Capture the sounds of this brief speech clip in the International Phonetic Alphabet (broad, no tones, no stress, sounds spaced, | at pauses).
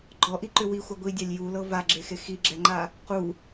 ɡ͡ǃ ɔ ʔ i ǃ ʏ w i xʷ a ɡʷ i dʲ a lʲ j u l ɤ v a ɡ͡ǁ e x e x i ɡ͡ǁ ɛ ŋ͡ǃ a | q u